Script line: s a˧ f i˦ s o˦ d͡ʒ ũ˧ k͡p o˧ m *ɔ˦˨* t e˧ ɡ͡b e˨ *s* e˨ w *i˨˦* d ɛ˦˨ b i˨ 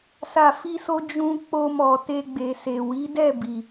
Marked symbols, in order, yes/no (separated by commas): no, yes, yes